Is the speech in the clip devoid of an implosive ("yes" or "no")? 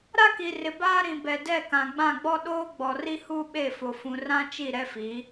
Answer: no